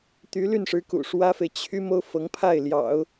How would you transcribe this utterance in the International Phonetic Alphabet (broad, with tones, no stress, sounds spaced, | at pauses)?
t̪ y˧˥ l y˥˩ n ʂ ɻ̩˧˥ k ṵ˨˩ ʂ w ä˥ f e˨ ɪ̯ t͡ɕʰ y˥ m o˥ ʊ̯ f ɤ˧˥ ŋ pʰ a˥˩ ɪ̯ l j ɑ̰˨˩˦ ʊ̯